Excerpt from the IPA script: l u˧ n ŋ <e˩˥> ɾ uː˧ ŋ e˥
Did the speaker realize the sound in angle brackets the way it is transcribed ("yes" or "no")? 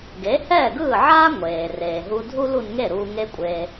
no